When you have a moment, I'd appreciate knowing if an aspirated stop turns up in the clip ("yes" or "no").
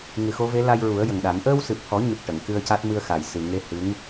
no